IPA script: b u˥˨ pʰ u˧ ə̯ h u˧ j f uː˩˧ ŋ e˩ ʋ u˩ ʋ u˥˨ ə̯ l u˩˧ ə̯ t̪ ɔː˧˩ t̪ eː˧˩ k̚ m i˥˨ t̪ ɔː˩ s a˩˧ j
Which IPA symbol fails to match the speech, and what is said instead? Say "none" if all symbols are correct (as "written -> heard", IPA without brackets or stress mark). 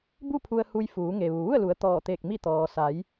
none